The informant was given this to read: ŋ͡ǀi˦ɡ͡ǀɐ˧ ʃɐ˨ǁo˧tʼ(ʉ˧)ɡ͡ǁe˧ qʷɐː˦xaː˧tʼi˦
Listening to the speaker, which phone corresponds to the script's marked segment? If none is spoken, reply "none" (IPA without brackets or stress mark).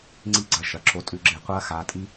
ʉ˧